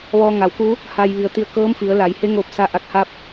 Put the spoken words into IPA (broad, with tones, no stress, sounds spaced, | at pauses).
ʋ ɔː˧ ŋ a˩˧ w k u˧˥ | h aː˧ j ʋ i˩˧ ə̯ t̪ i˧ ə̯ k ɤː˧˥ m f i˩˧ ə̯ l a˩˧ j h e˧˥ ŋ oː˧ p̚ s a˧ ʔ a˧˩ k̚ h a˧ p̚